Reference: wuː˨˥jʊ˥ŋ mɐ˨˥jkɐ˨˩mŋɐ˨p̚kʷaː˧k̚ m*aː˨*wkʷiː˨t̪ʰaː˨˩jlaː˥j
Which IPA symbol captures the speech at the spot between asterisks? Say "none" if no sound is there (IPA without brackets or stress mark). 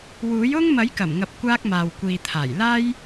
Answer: aː˨